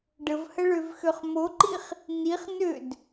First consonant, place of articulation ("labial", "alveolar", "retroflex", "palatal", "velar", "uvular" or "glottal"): retroflex